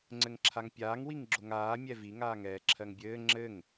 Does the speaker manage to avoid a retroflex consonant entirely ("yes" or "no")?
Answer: yes